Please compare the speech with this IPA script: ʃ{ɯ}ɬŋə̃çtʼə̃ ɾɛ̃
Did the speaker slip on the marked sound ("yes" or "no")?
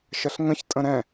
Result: yes